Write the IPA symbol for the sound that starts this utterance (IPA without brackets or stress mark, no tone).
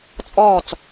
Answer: t͡sʼ